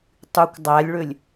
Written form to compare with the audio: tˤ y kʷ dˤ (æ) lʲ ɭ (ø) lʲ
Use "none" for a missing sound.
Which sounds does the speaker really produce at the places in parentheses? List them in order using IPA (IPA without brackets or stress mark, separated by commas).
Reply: æ, ø